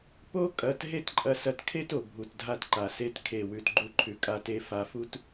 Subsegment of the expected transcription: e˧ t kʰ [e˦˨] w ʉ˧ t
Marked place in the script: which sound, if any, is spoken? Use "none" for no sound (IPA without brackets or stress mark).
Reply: e˦˨